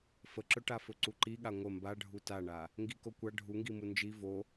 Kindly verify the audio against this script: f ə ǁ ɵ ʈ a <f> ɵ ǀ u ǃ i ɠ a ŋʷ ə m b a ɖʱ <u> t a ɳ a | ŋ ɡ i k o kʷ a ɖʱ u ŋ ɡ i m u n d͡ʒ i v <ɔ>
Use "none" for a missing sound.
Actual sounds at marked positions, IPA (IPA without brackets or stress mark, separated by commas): f, u, o